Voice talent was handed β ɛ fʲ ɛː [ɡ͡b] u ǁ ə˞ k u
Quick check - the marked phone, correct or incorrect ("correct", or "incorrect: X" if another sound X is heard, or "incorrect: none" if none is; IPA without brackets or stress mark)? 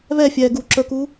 incorrect: ɡ